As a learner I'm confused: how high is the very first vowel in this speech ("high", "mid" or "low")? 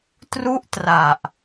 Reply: high